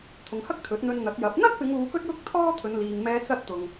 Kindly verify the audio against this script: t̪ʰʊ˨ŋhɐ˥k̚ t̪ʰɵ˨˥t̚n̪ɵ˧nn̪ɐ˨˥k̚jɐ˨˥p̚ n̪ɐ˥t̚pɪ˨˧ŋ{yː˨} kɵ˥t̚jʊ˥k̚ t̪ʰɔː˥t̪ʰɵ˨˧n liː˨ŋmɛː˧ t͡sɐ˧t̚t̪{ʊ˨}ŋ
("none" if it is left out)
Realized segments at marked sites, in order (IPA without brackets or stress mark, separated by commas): uː˨, ʊ˨